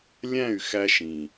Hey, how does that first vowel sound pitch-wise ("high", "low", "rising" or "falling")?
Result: falling